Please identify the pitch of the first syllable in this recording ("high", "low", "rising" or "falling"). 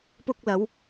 high